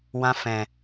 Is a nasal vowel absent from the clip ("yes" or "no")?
no